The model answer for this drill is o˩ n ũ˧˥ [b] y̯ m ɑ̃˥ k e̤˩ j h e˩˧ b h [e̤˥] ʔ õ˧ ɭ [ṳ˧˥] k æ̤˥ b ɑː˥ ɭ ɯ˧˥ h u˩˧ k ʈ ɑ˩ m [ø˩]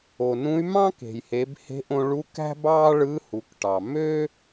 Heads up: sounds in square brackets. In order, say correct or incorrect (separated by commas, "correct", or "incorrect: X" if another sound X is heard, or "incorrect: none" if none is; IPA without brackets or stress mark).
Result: incorrect: none, incorrect: e̤˧˥, incorrect: u˧˥, incorrect: ø˥